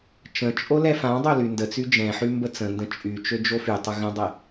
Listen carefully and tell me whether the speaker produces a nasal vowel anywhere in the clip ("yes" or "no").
yes